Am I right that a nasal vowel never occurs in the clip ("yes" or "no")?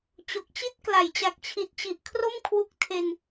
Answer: yes